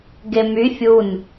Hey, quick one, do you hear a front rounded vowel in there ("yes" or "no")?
yes